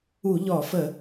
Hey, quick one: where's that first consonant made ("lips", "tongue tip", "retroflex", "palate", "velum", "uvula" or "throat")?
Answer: palate